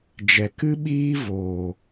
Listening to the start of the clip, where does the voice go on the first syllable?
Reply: low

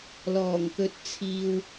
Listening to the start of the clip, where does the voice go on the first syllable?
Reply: low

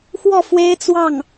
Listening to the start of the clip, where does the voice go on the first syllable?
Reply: falling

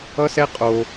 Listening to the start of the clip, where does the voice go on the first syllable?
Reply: high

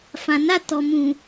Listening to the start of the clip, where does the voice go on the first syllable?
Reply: low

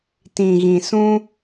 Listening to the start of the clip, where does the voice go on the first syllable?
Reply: low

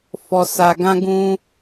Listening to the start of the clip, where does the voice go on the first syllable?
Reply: low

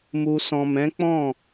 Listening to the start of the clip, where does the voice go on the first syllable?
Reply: low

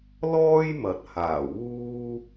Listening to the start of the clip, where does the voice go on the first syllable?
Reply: high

